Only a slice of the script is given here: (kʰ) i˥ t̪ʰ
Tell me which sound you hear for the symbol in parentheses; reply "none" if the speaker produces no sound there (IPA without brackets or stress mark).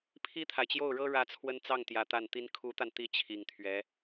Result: pʰ